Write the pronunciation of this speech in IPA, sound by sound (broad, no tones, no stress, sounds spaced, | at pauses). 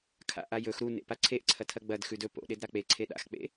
kʰ a̰ ʔ a j ɵ x ɾ u n ḛ p a ǀʰ e ʔ ǀʰ ɐ tʰ ɐ ɡ͡b ɐ d x ʉ d ɵ p o̰ ɗ e d ɾ a k͡p e ǀʰ e ɗ a̰ x k͡p ḛ